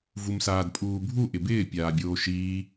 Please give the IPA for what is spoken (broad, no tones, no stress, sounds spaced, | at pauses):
v u m s aː d pʼ uː bʱ u ʔ ɪ b ɪː pʲ aː bʲ oː ʃ iː